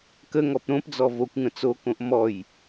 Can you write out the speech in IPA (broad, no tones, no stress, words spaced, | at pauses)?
kəŋɔp ɾõpd͡zɔ vokʷŋə̃ t͡sokõʔ mɔj